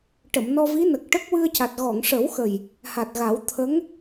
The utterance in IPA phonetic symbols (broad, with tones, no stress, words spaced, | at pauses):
ʈə˨˩˨mnɔ˧vi˧˥nə˨˩k̚ ʈə˦˥k̚wɨ˧ə̯ ca˨˩t̚ɣɔ˨˩˨ŋʂə˨˩˦wxə˨˩j | ha˨˩t̚ɣa˨˩˦w t̪ʰə˧˥ŋ